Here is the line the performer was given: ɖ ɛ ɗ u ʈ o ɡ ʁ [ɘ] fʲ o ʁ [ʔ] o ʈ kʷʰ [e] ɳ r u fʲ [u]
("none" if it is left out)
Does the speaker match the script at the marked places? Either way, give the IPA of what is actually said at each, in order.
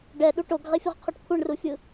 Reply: e, qʰ, e, ɯ

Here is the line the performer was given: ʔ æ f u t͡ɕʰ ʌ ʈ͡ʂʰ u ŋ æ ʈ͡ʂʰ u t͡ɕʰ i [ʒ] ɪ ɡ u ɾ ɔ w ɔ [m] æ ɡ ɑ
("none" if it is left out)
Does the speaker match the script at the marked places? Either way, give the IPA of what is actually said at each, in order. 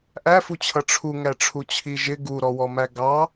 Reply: ʒ, m

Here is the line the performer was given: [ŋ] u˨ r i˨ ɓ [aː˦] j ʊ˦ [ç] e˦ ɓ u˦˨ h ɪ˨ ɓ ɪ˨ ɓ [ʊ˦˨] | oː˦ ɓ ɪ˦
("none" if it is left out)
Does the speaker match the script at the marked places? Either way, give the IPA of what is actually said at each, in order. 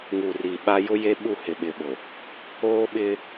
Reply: ŋ, a˦, j, ʊ˨

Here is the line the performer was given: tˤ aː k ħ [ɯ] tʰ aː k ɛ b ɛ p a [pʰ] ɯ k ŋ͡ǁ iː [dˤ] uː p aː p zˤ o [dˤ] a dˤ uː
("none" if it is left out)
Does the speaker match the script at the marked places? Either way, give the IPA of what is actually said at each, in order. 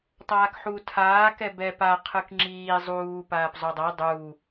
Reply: u, qʰ, zˤ, dˤ

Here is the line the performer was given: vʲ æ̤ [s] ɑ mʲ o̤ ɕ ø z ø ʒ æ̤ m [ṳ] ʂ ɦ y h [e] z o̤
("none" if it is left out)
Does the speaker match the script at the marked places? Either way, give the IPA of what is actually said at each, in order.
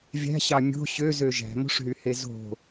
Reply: ɕ, o̤, e

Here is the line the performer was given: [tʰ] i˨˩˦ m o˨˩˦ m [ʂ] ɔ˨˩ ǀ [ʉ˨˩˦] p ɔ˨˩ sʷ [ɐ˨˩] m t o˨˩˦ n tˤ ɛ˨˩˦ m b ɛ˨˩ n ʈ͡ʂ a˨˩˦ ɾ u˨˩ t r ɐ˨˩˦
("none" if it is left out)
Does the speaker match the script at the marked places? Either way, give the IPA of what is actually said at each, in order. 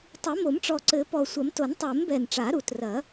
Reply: tˤ, ʈ͡ʂ, ɘ˨˩˦, ɐ˨˩˦

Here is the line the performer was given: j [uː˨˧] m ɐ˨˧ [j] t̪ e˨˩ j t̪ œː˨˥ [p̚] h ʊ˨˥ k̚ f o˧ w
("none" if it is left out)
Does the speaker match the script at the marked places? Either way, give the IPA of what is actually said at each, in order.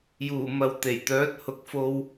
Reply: uː˨˩, w, t̚

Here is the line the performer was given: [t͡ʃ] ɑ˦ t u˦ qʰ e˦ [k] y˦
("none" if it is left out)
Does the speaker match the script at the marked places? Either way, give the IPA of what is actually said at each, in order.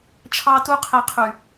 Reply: t͡ʃʰ, qʰ

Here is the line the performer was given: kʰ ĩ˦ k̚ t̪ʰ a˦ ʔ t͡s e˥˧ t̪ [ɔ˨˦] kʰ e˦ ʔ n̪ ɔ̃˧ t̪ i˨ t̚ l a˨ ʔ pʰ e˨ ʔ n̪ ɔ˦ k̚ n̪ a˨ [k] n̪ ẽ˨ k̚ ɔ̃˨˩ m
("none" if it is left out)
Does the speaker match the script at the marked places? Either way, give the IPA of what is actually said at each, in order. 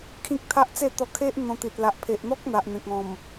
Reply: ɔ˧, ʔ

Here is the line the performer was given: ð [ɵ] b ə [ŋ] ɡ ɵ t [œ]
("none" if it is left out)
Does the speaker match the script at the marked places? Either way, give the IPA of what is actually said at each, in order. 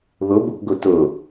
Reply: ɵ, k, ɵ

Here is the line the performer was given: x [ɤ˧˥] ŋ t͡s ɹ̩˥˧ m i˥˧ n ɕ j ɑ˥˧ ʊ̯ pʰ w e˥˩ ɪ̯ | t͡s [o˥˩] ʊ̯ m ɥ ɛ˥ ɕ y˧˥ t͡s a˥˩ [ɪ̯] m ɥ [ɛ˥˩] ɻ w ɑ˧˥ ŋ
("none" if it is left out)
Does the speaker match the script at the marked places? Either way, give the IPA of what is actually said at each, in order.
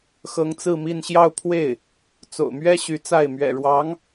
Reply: ɤ˧˥, o̰˨˩, ɪ̯, ɛ̰˨˩

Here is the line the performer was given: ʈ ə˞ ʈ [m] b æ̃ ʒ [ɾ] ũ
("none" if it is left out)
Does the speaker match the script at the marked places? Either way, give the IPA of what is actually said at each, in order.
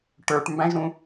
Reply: m, ɾ

